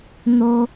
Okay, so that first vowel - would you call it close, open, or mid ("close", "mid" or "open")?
mid